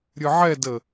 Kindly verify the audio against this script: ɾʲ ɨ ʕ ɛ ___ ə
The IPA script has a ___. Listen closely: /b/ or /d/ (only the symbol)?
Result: d